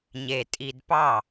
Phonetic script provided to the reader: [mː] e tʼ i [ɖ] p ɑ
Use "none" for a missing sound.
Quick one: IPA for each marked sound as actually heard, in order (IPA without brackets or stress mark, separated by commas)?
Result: ɲ, d